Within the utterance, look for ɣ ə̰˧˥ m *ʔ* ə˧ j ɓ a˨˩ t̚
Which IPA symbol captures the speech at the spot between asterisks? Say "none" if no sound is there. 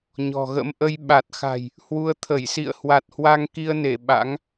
ʔ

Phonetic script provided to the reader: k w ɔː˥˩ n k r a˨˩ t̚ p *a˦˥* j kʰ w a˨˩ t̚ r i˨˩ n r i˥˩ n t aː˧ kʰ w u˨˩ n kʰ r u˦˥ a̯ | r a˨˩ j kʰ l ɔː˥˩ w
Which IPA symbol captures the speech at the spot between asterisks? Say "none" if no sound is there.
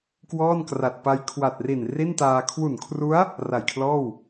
a˦˥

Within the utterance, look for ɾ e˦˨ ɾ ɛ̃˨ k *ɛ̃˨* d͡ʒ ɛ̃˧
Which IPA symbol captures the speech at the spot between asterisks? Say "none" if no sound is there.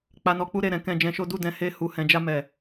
ɛ̃˨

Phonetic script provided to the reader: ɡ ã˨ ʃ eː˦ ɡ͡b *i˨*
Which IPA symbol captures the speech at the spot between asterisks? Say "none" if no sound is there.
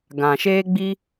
i˦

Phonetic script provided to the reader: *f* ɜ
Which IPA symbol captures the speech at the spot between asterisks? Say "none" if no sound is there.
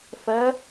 f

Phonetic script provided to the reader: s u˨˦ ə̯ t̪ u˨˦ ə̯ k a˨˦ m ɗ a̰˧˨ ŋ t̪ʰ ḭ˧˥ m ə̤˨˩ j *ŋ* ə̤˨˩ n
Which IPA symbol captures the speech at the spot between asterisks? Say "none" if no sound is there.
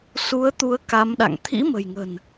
ŋ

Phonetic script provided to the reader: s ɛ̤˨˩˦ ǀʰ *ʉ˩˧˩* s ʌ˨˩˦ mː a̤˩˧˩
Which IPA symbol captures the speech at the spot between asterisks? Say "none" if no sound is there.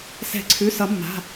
ʉ˩˧˩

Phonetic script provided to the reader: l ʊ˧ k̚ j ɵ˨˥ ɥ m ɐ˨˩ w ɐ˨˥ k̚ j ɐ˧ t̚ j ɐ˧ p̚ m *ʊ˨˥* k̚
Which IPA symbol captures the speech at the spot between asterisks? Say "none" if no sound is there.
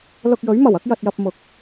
ʊ˨˥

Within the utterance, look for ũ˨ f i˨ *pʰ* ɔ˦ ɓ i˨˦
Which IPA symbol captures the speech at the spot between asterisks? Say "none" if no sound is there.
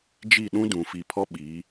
pʰ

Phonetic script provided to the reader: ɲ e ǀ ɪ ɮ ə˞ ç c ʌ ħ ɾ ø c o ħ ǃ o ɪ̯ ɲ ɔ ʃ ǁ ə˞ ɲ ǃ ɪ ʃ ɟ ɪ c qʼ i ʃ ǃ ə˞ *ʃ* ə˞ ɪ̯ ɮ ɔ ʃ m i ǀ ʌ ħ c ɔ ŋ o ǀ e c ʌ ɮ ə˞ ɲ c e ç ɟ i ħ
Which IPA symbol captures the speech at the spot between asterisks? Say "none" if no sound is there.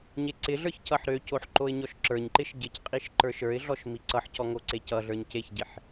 ʃ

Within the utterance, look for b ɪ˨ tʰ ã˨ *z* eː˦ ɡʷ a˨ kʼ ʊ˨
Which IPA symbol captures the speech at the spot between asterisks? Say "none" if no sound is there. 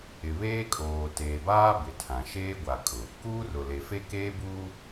ʃ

